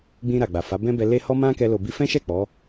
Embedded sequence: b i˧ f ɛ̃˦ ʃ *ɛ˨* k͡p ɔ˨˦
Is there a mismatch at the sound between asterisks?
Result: yes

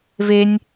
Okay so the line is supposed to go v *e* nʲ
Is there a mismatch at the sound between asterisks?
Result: no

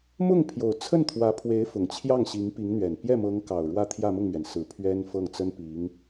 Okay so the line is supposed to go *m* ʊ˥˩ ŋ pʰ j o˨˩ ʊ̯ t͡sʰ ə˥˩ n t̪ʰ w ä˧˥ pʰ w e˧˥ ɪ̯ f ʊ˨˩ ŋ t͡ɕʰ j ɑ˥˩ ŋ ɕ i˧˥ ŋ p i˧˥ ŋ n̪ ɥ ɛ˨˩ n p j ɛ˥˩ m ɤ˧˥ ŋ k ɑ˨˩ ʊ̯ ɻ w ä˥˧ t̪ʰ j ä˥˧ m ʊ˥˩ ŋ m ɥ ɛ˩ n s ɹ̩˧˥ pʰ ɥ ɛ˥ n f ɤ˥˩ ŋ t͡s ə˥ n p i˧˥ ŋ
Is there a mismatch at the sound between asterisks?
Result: no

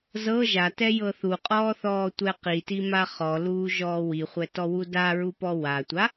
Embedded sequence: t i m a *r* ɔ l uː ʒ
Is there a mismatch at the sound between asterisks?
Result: yes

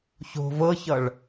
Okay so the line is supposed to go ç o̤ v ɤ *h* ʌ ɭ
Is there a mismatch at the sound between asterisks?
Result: yes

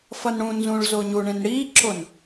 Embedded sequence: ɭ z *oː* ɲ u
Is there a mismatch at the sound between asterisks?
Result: yes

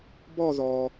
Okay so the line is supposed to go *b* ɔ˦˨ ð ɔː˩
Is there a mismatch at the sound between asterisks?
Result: no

